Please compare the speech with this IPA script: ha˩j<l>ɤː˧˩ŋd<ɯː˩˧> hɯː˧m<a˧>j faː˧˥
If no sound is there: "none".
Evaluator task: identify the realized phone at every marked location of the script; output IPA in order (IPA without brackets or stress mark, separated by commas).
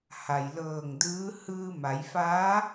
l, ɯː˧˥, a˩˧